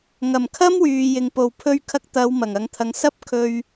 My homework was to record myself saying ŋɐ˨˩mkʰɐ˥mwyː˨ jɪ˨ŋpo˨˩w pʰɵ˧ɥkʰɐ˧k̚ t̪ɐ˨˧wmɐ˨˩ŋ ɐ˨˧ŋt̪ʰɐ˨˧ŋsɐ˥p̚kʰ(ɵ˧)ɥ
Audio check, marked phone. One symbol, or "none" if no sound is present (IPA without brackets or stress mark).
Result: ɵ˧